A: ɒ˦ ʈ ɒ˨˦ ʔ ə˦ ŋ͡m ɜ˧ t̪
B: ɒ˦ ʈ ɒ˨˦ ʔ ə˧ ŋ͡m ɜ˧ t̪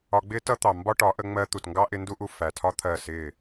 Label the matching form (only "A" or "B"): B